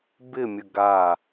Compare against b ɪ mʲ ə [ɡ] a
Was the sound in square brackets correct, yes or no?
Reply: yes